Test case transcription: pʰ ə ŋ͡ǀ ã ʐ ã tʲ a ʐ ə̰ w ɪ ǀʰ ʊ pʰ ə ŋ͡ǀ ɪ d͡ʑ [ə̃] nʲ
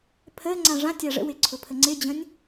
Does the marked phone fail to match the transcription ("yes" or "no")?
no